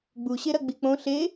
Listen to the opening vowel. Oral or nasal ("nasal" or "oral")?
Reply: oral